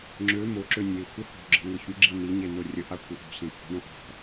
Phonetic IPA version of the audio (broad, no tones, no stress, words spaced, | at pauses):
ŋ͡ǁø moǁø nʲe xʷɘho̤ɡ͡ǁə̤ ŋʷɘçyɡ͡ǁi niɲe norʲəʔa kʷɘʔo̤sẽ kʷʰə̤ɳõ ʔɔ̤